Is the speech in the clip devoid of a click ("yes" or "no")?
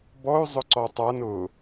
no